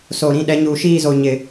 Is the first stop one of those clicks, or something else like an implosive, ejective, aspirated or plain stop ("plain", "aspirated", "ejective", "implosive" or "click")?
implosive